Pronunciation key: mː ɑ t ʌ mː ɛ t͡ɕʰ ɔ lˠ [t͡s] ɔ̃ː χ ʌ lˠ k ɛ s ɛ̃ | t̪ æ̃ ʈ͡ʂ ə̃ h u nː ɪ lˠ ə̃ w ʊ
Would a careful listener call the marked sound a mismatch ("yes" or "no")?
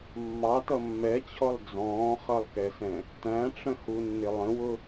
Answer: yes